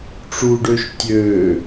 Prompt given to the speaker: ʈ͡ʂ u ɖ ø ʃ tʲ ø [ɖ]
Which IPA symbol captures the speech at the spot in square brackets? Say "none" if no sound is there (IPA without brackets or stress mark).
none